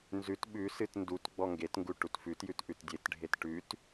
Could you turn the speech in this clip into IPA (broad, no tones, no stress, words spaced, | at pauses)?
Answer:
nzʉt ɓʉsɨt ndut ɡ͡bɔŋɡetŋɡu ʈutfʉtjʉt ʔʉtdʲetɖʱet ʈʉt